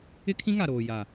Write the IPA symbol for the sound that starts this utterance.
ɪ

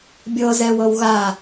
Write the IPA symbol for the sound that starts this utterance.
bʲ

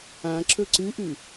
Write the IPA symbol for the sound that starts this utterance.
ã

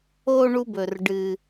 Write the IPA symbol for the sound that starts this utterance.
o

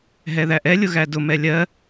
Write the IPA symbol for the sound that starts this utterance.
ɦ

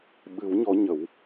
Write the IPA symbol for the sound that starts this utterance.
ɓ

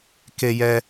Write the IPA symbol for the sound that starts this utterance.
k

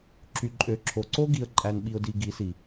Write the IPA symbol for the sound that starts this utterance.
ǁ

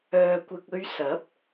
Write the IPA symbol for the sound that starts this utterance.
œː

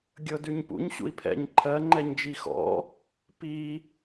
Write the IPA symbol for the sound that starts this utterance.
ɡʲ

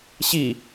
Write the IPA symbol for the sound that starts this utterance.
ɕ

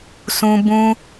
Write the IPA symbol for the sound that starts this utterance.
s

